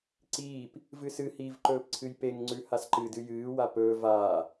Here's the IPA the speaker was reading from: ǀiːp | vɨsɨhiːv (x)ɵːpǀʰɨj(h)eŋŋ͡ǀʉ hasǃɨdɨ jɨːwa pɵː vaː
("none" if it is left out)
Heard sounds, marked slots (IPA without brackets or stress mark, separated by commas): ǃ, p